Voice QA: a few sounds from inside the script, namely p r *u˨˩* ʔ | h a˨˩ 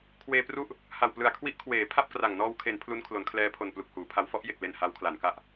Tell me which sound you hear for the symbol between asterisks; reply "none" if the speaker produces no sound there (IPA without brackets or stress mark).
u˥˩